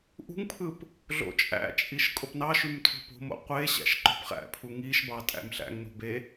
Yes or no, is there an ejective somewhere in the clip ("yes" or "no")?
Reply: yes